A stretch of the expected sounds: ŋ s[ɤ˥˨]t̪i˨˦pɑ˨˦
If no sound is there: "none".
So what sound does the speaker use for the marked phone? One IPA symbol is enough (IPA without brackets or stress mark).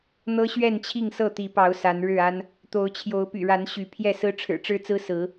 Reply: ɤ˥˨